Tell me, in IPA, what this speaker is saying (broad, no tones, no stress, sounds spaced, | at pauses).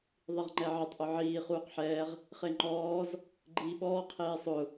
ðˤ i ʁ ŋ͡ǃ ɛ ʕ ɪ tˤ ʔ ʊ ʕ iː χ uː q ħ ɛː ʁ | χ e ŋ͡ǃ ɔː z | ɡ͡ǃ iː ɓ ɔː qʰ eː sˤ ʊ